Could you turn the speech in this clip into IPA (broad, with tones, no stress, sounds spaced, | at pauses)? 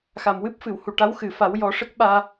x a˨˩˨ m w ɨ˦˥ p̚ f ɨ˨˩˨ w h u˨˩ ʈ a˧˥ w x ɨ˨˩ f a˨˩˦ w j ɔ˨˩˦ ʂ ə˦˥ k̚ ɓ aː˧